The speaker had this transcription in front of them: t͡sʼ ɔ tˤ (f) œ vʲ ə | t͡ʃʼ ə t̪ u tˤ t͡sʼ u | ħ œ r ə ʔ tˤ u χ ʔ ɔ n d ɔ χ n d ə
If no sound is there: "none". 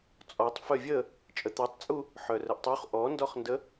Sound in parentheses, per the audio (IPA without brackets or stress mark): f